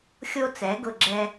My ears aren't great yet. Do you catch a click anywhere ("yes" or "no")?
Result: yes